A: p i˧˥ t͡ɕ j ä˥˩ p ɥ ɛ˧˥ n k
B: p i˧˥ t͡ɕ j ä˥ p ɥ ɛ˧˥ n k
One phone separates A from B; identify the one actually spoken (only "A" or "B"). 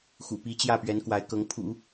A